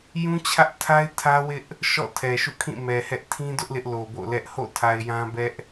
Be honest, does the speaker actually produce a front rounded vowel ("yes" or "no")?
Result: no